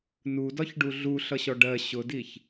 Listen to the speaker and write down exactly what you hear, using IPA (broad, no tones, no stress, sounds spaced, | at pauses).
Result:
n u d ɒ ç ɖ u ɮ u ɬ ʌ ɕ ɔ ɖ ɜ ɕ ʊ d i ç